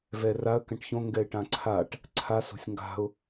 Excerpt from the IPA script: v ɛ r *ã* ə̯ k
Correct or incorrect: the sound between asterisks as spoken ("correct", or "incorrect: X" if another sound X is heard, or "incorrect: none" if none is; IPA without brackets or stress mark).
incorrect: a